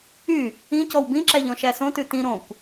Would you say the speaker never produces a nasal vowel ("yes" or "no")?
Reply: no